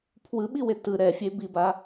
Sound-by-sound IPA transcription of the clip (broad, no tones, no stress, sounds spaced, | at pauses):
pʰ w ɯ ɓ i w e t ɯ ɾ ɛ fʲ e b i b a